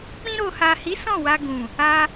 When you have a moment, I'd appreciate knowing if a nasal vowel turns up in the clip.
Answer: yes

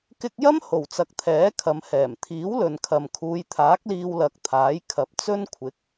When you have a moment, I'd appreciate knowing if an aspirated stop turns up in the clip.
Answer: yes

